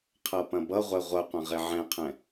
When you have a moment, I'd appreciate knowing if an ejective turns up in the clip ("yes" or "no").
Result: no